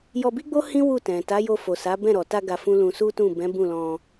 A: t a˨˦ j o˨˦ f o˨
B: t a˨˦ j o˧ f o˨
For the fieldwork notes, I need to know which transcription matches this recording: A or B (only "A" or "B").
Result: B